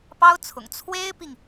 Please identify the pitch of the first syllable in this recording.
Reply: high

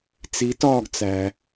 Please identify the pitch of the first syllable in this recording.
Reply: rising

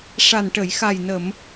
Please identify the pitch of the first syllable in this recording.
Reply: low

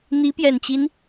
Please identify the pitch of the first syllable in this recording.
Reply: rising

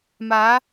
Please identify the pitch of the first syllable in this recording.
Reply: rising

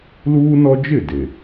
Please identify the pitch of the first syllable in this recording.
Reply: high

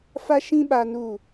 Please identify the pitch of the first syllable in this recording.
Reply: high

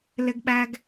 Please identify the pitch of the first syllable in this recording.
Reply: high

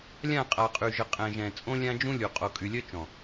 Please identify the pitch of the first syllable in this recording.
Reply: falling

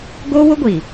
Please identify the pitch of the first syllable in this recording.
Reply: high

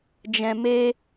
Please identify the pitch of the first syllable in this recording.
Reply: low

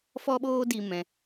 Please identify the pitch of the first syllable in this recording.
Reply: high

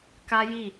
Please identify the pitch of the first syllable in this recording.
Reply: high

